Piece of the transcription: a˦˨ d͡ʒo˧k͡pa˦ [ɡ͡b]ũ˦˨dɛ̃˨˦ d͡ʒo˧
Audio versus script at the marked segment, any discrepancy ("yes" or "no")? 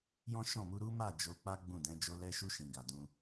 no